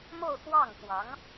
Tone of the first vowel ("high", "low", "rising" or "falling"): falling